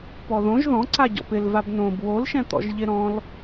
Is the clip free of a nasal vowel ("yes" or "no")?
no